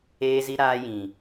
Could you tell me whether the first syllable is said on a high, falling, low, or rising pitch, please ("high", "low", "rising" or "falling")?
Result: high